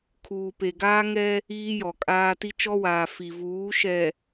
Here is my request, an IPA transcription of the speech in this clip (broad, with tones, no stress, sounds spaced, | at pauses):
kʰ uː˨ p e˨ ɡ aː˦ ŋ ɛ˦ | iː˦ j ɔ˨ kʼ aː˦ t i˦ t͡ʃ ɔ˦ w aː˨ f i˨ v uː˨˦ ʃ ɛ˨